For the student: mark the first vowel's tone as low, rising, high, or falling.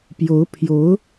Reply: rising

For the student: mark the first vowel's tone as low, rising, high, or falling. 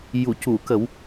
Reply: low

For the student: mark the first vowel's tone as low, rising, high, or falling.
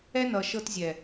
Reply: high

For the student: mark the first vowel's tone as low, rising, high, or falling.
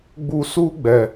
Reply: low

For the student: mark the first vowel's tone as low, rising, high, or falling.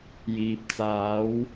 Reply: low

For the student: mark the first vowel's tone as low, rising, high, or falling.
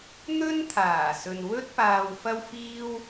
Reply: high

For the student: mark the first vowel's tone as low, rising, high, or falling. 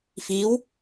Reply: rising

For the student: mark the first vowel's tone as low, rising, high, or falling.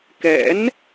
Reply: rising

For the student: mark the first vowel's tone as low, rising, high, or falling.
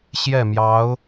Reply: falling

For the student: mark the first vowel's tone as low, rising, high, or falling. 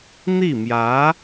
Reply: falling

